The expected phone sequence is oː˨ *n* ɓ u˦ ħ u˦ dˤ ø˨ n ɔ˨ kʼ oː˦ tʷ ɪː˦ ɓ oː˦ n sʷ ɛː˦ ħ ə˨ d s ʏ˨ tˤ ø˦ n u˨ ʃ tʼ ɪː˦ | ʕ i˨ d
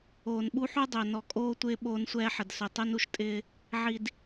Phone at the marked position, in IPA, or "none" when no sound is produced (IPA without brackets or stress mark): n